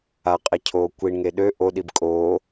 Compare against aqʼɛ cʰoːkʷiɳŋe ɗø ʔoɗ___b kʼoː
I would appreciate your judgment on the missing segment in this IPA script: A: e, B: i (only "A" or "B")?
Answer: B